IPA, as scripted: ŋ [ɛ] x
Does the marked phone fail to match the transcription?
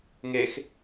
yes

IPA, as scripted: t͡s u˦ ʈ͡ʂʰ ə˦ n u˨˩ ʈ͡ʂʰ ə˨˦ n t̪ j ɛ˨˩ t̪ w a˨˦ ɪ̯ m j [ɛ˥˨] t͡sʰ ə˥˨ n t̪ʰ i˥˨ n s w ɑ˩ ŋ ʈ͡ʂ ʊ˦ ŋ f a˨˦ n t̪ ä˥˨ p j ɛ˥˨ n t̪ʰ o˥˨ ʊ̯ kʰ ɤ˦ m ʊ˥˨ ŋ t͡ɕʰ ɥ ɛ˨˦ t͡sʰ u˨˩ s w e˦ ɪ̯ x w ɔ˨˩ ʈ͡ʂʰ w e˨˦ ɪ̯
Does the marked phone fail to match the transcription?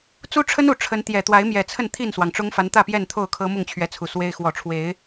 yes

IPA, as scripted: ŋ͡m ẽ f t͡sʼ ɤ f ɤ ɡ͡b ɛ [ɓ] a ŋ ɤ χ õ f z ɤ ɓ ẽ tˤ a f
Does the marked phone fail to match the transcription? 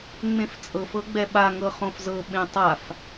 no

